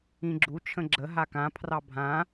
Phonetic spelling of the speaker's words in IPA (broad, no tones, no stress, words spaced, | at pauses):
ĩɡ͡ǁu t͡ʃʰə̃ɡ͡ǁə ɦakã pʰrɑbʱã